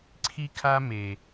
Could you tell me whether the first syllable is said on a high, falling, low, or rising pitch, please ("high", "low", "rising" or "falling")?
high